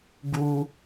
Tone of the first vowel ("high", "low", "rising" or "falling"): high